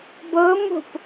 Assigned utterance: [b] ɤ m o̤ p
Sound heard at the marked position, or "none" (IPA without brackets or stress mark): b